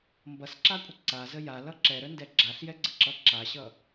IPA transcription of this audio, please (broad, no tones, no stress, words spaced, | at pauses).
mbʌsǁakʷʼə ǀazə jalʌ ǁɛɾəndɛ ɡ͡ǁaɬjɛɡ͡ǀəǁʌ ǁaɕʌ